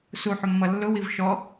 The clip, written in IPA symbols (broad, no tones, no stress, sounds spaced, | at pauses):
s u ħ ʊ mː ʌ lː ʊ w i v ʃ ɔ